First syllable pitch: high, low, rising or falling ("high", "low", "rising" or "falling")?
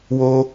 high